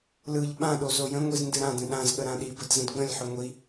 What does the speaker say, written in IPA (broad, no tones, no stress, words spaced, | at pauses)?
lɯʎ ɓãɗo zojə̃ŋʷiz ndɨɾãdə̃ ɗãzɠə ɾãɗibəd zə̃dɡ͡bə̃lʲħʏ ŋʷi